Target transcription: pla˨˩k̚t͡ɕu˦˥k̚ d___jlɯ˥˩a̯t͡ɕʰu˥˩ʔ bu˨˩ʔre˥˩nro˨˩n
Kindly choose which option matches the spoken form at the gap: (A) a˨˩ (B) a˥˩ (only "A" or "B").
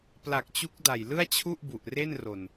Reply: A